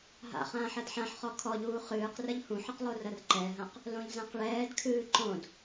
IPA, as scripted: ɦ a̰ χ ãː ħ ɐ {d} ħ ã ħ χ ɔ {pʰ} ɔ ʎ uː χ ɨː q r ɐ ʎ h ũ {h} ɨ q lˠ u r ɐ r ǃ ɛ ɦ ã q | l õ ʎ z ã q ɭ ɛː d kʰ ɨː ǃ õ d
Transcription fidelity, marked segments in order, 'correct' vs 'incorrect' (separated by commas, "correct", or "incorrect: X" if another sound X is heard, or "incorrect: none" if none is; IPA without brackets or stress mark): correct, incorrect: kʰ, incorrect: ħ